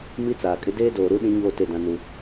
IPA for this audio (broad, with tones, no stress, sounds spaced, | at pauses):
m i˦ t͡s aː˨ kʼ ɪ˦ d eː˦ d oː˨ ɾ u˦ ɗ ĩ˦ ɲ oː˦˨ t e˦˨ d ã˦ n u˦